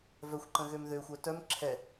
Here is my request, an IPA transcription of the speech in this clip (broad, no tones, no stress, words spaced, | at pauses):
vœxʷǃə̃ ɣømðøxʷœ tœm ǁʰɛ